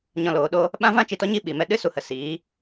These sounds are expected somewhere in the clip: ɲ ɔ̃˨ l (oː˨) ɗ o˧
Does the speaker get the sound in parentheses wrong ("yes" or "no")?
no